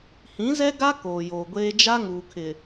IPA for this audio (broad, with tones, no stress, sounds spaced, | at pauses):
h ĩ˨˦ z ɛ˦ ɡ a˦ k oː˨ j oː˨ ɡʷ eː˦ d͡ʒ a˦ ŋ uː˨ kʰ ɪ˨